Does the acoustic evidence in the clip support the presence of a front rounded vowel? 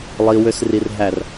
yes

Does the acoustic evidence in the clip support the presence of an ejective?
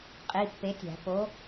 yes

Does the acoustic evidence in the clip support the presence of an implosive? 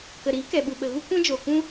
yes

